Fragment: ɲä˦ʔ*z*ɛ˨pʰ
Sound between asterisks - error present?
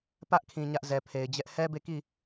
no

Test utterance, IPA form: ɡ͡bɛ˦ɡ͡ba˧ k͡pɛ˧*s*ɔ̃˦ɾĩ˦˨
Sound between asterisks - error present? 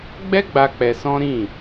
no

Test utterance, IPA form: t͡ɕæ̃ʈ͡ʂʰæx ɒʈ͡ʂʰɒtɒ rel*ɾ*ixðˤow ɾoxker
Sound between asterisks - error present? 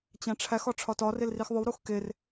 yes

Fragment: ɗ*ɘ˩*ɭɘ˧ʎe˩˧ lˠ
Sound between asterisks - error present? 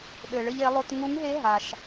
no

